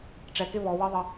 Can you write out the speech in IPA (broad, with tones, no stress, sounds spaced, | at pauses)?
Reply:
ʈ͡ʂ ɛ˨ k ɪ˦ β ɔ˨ w ə˦ ðˤ ə˨